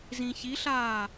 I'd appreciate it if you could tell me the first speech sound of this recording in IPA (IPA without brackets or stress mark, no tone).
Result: z